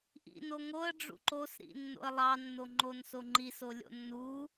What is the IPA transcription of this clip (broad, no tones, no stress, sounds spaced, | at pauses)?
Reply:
ʔ ḭ n o ŋ o ə̯ ɖ͡ʐ ṵ ǃ o s ɾ ḭ nː o̰ ə̯ lˠ ɑ nː o ŋ͡ǃ o n s o ŋ͡ǃ i s o lʲ o̰ nː u